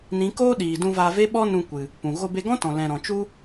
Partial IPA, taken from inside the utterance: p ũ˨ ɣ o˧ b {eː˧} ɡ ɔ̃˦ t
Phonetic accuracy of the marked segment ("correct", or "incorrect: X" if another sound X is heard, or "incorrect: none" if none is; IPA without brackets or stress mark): incorrect: e˧